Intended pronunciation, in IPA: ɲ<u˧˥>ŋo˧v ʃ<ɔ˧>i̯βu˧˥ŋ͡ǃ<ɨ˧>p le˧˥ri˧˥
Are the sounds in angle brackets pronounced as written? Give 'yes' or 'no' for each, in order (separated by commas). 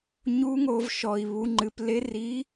yes, yes, yes